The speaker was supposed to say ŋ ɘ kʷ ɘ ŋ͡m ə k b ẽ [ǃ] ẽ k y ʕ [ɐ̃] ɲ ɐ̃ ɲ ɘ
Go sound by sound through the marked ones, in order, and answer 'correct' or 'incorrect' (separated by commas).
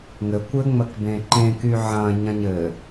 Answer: correct, correct